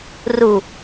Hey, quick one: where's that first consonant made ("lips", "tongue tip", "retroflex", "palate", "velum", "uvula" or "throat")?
tongue tip